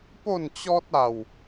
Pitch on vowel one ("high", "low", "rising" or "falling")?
falling